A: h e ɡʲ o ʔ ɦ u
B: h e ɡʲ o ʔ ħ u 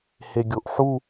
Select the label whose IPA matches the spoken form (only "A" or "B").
B